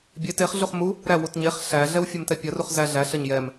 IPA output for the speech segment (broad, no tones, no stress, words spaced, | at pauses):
bʲe teχ ɮuχmu | ɾæwut ɲeχ ɬæɮɛw fʲɛmtɛpʲɐruχ zæ ɮæ ɬɐɲjɛm